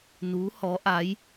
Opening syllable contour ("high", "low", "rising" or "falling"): rising